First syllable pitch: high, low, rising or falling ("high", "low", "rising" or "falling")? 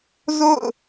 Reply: falling